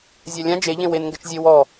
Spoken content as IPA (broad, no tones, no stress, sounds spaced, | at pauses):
zʲ a lʲ ã d͡ʒ e ʎ ẽ w e n ŋ ɡ ɘ t͡ʃ zʲ e w ɔ